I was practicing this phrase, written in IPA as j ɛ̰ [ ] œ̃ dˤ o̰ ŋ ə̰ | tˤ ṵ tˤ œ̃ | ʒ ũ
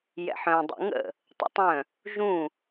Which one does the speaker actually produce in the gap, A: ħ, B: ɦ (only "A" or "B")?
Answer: A